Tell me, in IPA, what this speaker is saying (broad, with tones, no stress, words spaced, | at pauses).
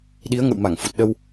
ɗi˨˦ə̯ŋə̰˧˨wma˧˩ŋfu˨˩t̚ ɗə˧w